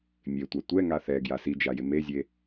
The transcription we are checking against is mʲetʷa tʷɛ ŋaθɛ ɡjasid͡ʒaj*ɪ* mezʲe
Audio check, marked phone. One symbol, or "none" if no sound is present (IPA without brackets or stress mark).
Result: ɪ